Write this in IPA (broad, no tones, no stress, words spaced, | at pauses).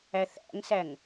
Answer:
æθæ̰ŋsæŋ